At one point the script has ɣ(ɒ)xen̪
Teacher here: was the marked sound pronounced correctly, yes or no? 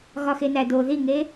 yes